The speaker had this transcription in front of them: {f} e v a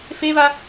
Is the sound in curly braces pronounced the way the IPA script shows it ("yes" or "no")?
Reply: yes